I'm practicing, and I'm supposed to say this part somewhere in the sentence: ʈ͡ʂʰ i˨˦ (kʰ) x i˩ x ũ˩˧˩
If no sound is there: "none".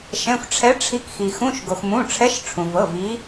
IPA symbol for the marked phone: k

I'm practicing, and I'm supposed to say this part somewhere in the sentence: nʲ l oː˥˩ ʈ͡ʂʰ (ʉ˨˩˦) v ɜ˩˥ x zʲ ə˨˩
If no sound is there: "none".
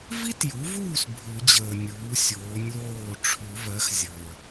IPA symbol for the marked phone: ʉ˨˩˦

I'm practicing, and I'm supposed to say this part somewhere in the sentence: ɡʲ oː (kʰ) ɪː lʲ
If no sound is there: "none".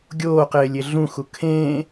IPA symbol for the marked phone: q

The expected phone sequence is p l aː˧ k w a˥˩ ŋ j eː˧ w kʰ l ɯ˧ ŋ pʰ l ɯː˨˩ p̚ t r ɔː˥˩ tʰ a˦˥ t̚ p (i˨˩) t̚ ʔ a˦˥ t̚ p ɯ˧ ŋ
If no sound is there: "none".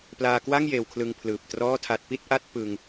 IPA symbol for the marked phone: i˥˩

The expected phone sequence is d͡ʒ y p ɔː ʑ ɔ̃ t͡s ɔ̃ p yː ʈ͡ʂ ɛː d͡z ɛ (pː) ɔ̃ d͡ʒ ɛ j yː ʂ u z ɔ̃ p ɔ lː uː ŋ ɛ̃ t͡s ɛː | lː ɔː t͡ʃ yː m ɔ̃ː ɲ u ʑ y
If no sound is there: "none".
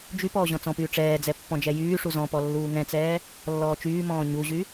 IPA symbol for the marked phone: pː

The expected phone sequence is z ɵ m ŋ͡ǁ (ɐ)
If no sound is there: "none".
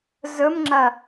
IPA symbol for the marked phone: ɐ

